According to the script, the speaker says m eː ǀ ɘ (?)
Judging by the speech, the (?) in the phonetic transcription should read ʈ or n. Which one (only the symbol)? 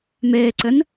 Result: n